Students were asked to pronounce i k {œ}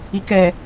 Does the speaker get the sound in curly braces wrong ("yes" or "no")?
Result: yes